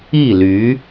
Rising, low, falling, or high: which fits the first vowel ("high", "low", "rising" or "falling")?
falling